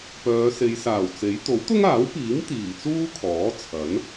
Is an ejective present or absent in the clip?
absent